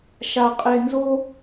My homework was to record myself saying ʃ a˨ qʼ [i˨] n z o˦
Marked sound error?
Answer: yes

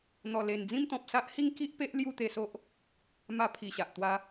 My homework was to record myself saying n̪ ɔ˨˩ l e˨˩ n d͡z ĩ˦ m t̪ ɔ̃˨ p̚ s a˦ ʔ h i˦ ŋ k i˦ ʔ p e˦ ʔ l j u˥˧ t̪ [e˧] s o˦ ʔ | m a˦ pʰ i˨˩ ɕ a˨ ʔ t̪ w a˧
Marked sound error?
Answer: no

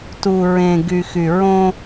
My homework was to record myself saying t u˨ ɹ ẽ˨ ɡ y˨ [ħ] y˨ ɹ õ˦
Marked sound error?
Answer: yes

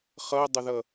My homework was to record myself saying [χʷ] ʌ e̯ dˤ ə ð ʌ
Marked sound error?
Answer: yes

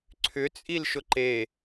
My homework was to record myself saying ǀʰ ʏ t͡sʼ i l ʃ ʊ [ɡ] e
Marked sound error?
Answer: yes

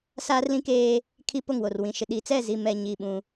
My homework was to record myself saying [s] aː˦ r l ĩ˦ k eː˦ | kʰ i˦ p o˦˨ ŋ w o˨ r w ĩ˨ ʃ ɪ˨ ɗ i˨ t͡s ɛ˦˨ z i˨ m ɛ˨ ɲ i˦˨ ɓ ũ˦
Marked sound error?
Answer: no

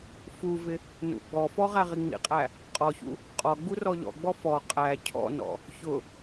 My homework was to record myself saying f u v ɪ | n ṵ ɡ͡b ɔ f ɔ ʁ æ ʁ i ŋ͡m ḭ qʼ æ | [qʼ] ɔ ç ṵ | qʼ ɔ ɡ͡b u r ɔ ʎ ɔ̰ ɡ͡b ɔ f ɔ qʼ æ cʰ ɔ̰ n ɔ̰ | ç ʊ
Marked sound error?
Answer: no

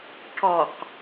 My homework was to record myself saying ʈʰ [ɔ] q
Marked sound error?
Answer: no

